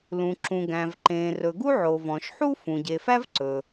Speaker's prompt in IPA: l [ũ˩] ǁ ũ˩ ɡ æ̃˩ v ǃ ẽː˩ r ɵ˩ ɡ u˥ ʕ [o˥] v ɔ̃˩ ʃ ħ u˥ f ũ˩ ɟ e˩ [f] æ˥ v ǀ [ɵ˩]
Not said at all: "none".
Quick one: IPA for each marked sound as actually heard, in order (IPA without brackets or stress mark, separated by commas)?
ũ˩, o˩, f, ɵ˩